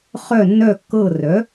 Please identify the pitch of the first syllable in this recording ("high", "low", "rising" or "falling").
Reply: falling